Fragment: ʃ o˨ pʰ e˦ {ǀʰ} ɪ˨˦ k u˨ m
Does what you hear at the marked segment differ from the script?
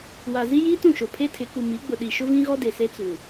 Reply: yes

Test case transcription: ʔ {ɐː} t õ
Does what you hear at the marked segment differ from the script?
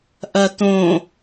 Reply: yes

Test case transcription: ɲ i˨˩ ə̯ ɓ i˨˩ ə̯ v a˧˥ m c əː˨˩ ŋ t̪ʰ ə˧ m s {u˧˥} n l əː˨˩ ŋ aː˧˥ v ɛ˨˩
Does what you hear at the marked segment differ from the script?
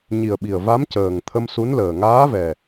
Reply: no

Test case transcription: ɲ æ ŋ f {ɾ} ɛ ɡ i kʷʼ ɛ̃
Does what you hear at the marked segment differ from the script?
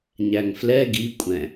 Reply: yes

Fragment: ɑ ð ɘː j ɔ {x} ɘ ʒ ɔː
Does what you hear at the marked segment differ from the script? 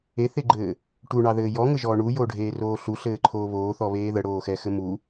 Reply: yes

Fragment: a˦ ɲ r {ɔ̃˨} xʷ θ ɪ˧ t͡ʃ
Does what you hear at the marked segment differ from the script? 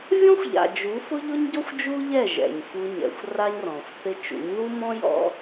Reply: no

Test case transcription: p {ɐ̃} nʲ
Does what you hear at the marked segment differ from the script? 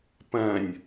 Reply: no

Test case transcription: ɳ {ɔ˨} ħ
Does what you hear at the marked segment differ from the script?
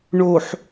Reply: yes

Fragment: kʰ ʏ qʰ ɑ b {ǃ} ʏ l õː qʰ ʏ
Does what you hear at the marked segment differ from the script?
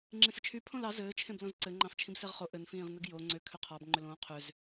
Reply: yes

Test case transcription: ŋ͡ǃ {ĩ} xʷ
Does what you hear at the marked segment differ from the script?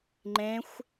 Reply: yes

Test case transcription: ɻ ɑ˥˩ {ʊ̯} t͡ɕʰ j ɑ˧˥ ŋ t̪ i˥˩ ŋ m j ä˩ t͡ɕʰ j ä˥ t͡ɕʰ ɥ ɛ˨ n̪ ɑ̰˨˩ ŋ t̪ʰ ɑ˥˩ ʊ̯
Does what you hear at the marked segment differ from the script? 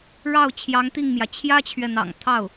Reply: no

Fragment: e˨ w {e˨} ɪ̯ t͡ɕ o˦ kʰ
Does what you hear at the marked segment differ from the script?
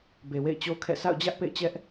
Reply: yes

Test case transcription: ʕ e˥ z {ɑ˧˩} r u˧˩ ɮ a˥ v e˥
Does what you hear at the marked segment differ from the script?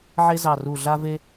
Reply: no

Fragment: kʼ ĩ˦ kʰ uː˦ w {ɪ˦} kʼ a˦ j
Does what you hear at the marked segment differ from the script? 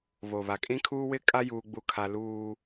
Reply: no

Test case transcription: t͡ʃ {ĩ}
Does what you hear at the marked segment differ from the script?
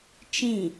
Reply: no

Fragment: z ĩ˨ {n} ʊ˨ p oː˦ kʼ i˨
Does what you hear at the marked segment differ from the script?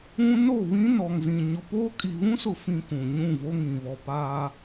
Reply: yes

